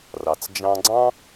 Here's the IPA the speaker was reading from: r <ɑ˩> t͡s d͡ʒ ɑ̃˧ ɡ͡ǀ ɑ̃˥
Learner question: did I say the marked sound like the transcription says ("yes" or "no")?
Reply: yes